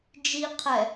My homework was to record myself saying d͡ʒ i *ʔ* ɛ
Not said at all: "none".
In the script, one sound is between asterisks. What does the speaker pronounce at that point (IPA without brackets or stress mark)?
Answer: qʰ